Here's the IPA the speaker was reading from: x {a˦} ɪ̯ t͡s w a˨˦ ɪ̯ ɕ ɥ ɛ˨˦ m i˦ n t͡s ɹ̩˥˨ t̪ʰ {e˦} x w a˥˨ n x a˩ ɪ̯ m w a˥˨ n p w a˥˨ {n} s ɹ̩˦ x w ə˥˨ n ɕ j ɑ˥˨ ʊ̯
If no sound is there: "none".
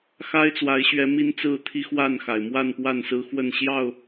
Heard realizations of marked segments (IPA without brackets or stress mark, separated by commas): a˦, i˦, n